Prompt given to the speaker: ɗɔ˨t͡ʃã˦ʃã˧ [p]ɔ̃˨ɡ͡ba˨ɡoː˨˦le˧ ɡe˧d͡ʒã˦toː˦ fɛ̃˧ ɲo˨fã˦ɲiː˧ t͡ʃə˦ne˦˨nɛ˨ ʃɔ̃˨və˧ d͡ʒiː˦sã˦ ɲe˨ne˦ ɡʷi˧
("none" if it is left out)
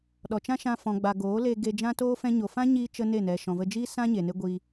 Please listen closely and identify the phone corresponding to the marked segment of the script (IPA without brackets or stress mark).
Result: f